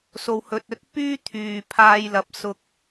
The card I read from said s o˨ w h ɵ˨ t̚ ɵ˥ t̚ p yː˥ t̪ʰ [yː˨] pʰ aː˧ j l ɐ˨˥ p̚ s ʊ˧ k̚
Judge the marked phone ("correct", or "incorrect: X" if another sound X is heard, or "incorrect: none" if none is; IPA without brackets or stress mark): correct